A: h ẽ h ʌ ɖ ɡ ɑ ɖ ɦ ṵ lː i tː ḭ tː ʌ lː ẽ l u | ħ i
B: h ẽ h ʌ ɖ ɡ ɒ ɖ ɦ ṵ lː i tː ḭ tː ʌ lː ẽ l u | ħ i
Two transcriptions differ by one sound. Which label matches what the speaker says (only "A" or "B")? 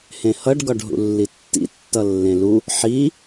B